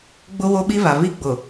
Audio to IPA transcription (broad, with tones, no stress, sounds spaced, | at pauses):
ɡ͡b ʊ˦ w o˦ ɓ i˦ β a˨ β i˦ ɡ͡b ʊ˨